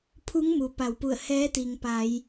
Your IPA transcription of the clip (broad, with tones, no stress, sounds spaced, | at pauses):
pʰ u˧˥ ŋ m u˩ p a˩˧ w p u˧˩ ə̯ h ɛː˧˥ t̪ i˩ ŋ p a˩˧ j